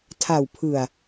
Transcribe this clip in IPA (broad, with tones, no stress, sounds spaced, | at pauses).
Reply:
tʰ a˨˩ w pʰ ɯ˨˩ a̯